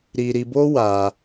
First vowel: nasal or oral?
oral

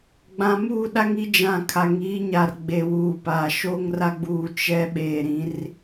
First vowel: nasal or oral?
nasal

